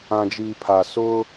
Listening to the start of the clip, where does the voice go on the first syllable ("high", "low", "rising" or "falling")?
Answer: low